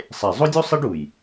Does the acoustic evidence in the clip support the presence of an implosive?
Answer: no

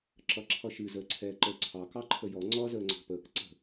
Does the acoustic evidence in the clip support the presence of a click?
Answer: yes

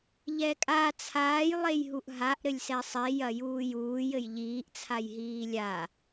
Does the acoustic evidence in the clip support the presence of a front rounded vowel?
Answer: no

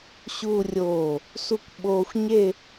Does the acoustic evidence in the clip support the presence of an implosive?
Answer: yes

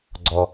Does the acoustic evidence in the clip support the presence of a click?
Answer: yes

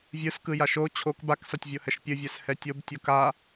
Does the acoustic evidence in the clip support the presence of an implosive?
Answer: no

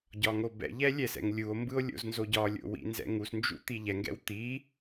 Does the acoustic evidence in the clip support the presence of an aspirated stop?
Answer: no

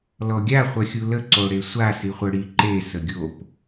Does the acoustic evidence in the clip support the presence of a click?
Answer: yes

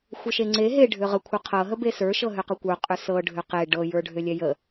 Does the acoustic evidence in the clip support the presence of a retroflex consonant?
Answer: yes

